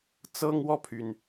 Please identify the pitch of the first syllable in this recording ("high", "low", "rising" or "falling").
high